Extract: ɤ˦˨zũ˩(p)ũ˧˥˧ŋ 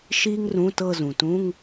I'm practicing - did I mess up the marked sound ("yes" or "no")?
yes